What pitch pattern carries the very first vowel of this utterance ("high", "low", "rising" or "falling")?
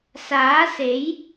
rising